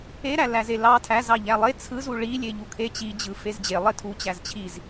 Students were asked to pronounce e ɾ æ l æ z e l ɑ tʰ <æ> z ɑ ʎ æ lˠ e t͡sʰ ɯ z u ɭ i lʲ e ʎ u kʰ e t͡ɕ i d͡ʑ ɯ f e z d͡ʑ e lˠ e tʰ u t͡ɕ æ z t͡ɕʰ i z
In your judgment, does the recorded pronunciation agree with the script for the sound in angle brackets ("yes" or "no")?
yes